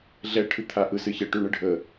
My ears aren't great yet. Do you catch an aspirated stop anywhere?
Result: yes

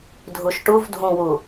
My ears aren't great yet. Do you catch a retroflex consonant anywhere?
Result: yes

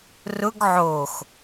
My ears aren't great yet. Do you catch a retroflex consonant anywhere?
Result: no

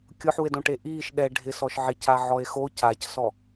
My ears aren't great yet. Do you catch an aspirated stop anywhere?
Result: no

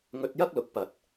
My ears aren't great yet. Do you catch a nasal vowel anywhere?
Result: no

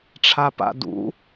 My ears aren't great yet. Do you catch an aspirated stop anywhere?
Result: yes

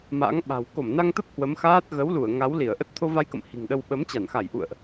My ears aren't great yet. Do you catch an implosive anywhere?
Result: yes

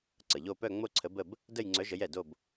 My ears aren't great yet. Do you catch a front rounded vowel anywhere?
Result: yes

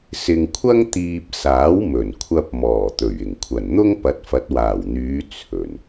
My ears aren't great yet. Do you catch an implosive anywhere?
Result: no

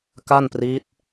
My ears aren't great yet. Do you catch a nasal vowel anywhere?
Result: no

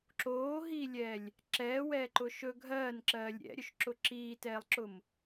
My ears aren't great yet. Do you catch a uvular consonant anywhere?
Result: no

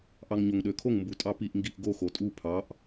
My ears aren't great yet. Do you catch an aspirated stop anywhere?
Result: yes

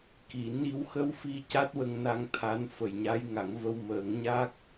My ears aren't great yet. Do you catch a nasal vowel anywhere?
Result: no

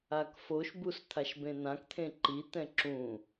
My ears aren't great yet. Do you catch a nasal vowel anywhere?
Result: yes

